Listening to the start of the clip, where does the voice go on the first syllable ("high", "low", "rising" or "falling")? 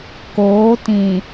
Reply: rising